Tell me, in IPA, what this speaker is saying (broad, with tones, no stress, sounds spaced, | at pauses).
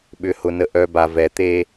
ɓ ʏ˧ h ʊ˧ n ə˧ ʔ œ˧ b a˧ v ɛ˧ t̪ e˥